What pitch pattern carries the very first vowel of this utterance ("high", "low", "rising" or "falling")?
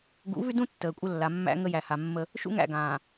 rising